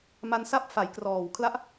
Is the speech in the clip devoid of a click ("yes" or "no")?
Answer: yes